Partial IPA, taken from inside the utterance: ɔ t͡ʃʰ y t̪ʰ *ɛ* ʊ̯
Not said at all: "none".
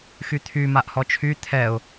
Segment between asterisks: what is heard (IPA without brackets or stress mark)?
ɛ